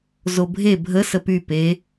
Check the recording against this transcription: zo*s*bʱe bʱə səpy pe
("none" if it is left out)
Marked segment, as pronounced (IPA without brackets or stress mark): none